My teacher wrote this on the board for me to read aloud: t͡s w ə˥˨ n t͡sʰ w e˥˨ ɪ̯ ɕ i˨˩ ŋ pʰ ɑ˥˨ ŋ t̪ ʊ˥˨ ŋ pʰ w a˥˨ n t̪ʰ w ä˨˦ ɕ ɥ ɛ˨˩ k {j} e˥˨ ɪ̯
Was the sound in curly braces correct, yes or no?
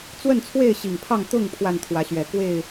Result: no